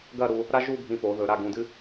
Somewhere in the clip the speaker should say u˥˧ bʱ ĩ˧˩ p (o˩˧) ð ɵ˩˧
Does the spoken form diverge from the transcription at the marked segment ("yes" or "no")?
no